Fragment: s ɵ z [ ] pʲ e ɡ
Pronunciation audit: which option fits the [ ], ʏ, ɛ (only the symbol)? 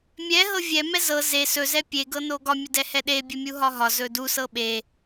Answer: ɛ